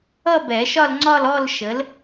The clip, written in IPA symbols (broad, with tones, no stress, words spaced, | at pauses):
ʌ˥˧bɛ˨˩˦ʃɒ˥˧lŋ͡ǀɒ˥˧l ɔ˥˧lʃə˨˥l